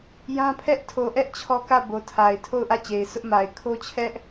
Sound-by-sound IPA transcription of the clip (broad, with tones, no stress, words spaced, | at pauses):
jã˦pʰɛ˦ʔ tʰo˨ʔɛ˦ʔ t͡ɕʰɔ˦kä˦˨ bo˨tʰa˨ɪ̯ tʰo˦˨ʊ̯ʔä˦˨ t͡ɕe˨ɪ̯sʊ˦ʔma˨ɪ̯ kʰo˦t͡ɕʰɛ˦ʔ